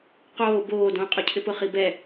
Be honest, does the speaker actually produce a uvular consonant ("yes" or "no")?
yes